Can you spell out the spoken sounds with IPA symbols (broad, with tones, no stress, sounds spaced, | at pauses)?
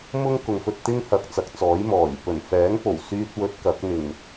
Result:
m ʊ˥ ŋ k ʊ˨ ŋ f ɵ˧ t̚ t̪ ɪ˥ ŋ h ɐ˨ k̚ t͡s ɐ˨˥ k̚ t͡s ɔː˨˥ j m ɔː˨˩ j p ɵ˨˩ n f ɛː˨˥ ŋ p o˨˩ w s yː˥ t̚ w ɵ˧ t̚ k ɐ˨˥ k̚ n̪ ɪ˨˩ ŋ